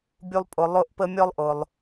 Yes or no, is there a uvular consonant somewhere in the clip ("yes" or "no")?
no